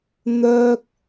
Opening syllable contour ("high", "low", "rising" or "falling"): high